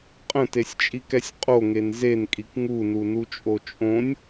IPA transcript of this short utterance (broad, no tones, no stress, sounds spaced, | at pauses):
qʼ ə̃ t e sʲ t͡ʃʼ i k ɛ sʲ qʼ o ŋ e n z e n kʼ i k ŋ u n u n u t͡ʃʼ o t͡ʃʼ õ nʲ